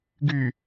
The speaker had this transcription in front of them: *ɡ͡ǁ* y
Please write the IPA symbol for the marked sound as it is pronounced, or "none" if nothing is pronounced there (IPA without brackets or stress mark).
ɡ